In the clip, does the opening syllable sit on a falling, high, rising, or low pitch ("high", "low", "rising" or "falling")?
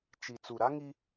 low